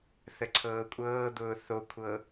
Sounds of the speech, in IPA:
θ ə ǀʰ ɤː kʷʼ ɤː d̪ ʊː θ o kʷʰ ɤ

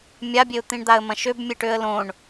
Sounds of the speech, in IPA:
mʲ a bʲ e ʊ̯ t̪ ĩ ɳ d̪ a ə̯ m ɐ̃ ʃ ø b mʲ e ʈ ø ə̯ l õ ɳ

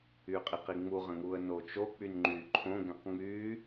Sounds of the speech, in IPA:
y qʼ i q i ŋ͡m u ʁ ə̃ ŋ u ə̯ n o t͡ʃ o k͡p y n ŋ͡ǃ y ǃʰ õ ɡ ɛ̃ q ŋ͡m y

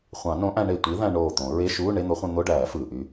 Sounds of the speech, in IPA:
χʷ ɑ̃˨˩˦ n õ˨˥ ʔ æ̃˧ ɳ e˧˩ tʷ i˨˥ ð æ̃˧ ɳ oː˧˩ t̪ õ˨˩˦ ɹ e˧˥˧ ʃ uː˧˥˧ ɳ e˧˥˧ n̪ o˨˥ χʷ ẽ˧ n̪ o˧˥˧ ɖ æː˨˩˦ f ɯː˩ ʔ y˧

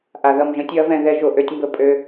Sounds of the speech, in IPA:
ʔ a˨ ð ʌ˦˨ m ʒ ə̃˦ tʲ ø˦ ɐ̯ v ɛ̃˦˨ ð ɛ˦ ʒ o˨ ʔ ø˦ tʲ m b ə˦ pʼ ø˦

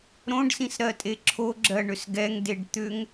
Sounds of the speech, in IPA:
ɾ õ ɖ s ĩ s ɾ ɜ tʼ e ǁʰ o ɡ͡ǁ ɜ ɳ ʏ s ɡ ɛ ŋ d e ɖ t̪ ʏ ŋ

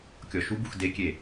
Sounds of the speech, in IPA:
kʲ ɔ ʃ u b u x d e kʲ e

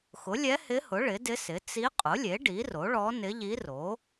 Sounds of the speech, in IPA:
x ʊ˩˥ lʲ ɛ˧˥ h ɪ˧˥ h ʊ˩˥ ɭ ɪ˩˥ d ɪ˧˥ s ɪ˩˥ t͡s i˧˥ qʼ ʊ˩˥ lʲ e˩˥ ɖ i˩˥ r o˩˥ ɭ ɔ˧˥ n ɪ˧˥ ʎ i˧˥ r o˩˥

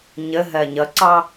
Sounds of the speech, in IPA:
ɲ ə ɦ ɜ ɲ ʌ ǀ ɑ

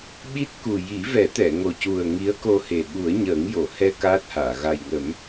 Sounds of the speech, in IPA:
ɓ i˦˥ t̚ k u˨˩ j i˨˩˦ v ɛ˨˩˦ t̪ ɛ˨˩˨ ŋ o˨˩ c u˨˩ ə̯ ŋ i˧˥ ə̯ k o˧ h e˨˩ ɓ u˨˩˦ ə̯ ɲ əː˨˩˦ ŋ j o˨˩˨ h ɛ˧ k aː˦˥ t̚ h aː˨˩˨ ɣ a˨˩ j ŋ ə˨˩˦ m

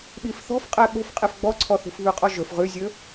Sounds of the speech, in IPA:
ɓ i f θ ɔ̤ f qʼ ɛ ɓ o̤ f qʼ e f ɡ͡b ɔ ǀʰ ɔ θ ṳ f β ʉ qʼ ɔ ʒ ɵ f ʁ ʉ zʲ ɵ

